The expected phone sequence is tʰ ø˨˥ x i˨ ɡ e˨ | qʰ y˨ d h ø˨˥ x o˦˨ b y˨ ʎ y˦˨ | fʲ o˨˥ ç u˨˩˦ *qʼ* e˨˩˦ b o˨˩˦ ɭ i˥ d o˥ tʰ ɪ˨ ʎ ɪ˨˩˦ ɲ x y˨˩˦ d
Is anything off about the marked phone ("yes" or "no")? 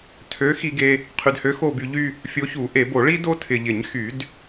yes